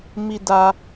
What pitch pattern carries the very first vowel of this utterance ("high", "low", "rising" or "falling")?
high